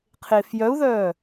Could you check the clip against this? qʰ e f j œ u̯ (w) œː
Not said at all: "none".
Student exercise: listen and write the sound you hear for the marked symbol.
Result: ð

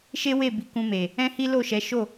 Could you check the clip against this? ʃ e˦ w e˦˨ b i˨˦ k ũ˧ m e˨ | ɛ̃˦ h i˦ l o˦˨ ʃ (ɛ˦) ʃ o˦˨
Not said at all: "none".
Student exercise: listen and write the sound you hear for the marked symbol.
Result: ɛ˨˦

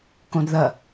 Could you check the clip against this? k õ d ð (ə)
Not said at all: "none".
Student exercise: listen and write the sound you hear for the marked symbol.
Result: ɐ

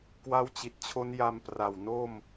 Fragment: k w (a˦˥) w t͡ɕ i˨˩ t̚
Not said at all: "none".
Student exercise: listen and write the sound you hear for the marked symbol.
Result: a˦˥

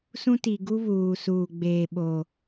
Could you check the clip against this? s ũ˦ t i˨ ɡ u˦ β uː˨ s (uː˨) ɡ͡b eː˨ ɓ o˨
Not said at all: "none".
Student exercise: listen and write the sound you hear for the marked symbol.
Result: uː˨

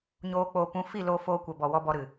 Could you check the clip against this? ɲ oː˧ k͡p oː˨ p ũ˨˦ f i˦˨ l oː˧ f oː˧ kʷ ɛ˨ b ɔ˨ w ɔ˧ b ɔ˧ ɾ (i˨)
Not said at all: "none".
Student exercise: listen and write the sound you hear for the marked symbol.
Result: ɨ˨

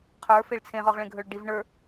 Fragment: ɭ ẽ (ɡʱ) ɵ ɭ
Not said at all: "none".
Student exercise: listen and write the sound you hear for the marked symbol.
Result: ɡʱ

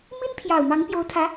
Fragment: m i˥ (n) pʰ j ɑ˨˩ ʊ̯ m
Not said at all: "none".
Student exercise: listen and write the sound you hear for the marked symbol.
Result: n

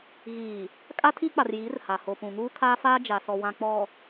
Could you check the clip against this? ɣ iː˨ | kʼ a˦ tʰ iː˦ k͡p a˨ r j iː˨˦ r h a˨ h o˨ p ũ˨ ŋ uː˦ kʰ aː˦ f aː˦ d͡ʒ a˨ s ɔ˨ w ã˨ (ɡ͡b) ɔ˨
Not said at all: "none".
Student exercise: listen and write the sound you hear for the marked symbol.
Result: k͡p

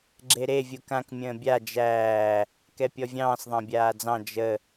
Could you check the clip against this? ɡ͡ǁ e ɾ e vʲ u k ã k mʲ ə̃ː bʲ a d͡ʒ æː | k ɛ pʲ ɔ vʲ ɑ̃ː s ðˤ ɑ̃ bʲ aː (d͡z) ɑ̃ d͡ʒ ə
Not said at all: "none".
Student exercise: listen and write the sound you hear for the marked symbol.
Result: d͡z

